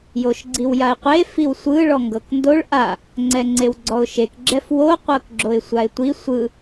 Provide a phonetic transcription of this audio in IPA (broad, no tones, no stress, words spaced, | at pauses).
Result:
joʃɡ͡ǀiwjaɪ̯qʷe fiwsʷɯ ɭɔŋɡɤkndoɭ ʔa | ŋ͡ǀɛŋ͡ǀewɡ͡ǀɔʊ̯ʃek ɡ͡ǁɛfwo qʷɤkɡ͡ǁoɪ̯sʷaɪ̯tʷi sʷɯ